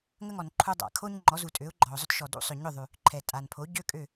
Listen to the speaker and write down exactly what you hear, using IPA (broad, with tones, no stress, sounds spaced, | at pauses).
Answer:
ŋ ə˥ ŋ ɔ˩ n ǃʰ u˧ dˤ a̰˩ kʰ o˥ ɲ ŋ͡ǃ ɔ˩˥ z u˩ tʼ ø˩˥ ʊ̯ ɡ͡ǃ ɔ˩ ʊ̯ zˤ ʏ˥ t ʃ ɔ˩ d ṵ˥ sˤ ʏ˩ ɲ ʏ˥˩ ðˤ ʉ˩ | ǃʰ ɛ˩ tʼ a˩ n pʰ o˩˥ ɟ ø˥ kʼ ø˥˩